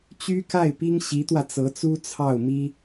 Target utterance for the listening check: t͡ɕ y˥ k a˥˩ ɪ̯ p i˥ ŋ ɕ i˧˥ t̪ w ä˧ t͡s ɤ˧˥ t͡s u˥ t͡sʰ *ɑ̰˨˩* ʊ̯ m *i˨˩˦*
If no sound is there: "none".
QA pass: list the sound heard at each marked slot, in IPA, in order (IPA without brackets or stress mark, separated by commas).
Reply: ɑ˥˩, i˥